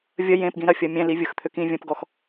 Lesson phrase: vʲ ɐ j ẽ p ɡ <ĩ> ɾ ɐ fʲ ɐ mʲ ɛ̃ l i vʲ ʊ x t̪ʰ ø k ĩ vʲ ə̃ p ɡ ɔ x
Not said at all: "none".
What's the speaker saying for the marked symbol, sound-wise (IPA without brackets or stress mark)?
ĩ